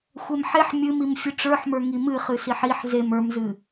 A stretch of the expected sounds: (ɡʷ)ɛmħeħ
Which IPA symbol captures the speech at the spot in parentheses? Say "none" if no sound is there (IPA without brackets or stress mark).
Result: xʷ